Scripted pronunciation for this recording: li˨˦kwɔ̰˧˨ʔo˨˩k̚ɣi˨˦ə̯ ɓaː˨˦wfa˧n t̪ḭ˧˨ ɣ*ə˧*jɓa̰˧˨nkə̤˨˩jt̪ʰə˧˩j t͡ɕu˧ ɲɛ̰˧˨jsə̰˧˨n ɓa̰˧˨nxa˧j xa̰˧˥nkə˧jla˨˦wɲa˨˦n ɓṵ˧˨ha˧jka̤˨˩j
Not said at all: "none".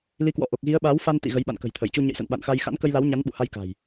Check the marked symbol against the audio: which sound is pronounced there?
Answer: ə˨˦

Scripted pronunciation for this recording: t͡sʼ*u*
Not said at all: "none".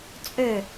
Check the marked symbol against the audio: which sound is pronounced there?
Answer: ø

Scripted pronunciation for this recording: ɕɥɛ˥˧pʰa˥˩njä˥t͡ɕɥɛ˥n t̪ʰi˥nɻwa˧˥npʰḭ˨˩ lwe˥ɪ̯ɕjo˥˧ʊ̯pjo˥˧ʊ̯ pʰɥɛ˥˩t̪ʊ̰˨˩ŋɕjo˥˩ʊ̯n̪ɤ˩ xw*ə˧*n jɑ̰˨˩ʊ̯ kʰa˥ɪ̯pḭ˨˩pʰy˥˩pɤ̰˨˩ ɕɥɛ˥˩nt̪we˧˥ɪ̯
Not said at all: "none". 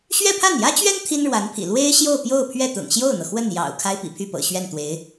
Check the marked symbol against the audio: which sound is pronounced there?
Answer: ə˥˩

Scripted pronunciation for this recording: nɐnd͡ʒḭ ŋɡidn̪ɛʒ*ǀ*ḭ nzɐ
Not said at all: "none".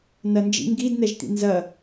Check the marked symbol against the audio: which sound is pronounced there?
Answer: t̪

